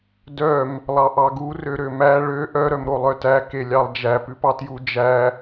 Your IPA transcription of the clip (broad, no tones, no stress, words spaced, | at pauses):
dœm | lˠɑʔɑɡu røɾømæ ɭø ʔœ ɾœmɾolˠœtæ kelʲɑlˠd͡ʒæ pʉpɑtju d͡ʒæ